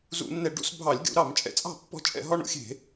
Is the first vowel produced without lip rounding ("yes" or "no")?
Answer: no